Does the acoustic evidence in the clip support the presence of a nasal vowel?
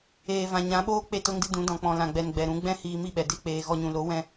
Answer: yes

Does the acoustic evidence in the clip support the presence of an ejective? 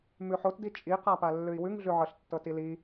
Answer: yes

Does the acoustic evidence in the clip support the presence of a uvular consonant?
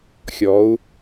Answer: no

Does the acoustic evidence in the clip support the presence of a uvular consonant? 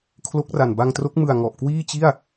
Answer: no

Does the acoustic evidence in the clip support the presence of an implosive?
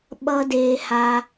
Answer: yes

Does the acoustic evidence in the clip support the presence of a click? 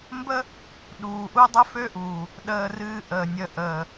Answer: no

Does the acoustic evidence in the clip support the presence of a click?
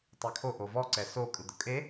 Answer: yes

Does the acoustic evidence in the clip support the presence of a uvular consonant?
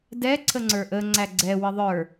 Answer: no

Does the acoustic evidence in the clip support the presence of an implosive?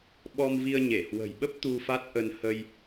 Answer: yes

